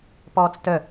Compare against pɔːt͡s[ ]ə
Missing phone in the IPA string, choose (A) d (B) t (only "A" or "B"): B